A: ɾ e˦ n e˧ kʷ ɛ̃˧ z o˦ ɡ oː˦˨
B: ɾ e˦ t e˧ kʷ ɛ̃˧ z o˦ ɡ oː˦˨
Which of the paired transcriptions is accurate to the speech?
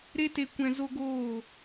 B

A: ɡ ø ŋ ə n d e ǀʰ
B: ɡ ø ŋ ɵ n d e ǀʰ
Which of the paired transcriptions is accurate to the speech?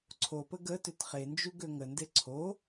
A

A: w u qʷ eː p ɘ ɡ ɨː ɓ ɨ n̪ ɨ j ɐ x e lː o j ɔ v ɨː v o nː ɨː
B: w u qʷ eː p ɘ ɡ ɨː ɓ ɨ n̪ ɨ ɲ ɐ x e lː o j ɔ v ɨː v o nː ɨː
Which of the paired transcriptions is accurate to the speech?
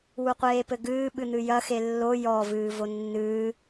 A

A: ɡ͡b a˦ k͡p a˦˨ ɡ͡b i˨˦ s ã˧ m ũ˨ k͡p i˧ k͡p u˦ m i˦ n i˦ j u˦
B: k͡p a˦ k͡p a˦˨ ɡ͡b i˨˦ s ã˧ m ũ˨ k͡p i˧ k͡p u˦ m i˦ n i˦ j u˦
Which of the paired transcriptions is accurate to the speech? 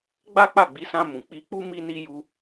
A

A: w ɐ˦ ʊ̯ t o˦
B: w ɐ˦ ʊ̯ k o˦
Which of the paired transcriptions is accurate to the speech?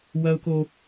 B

